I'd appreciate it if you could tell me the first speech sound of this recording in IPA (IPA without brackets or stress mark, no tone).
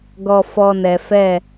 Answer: ɡ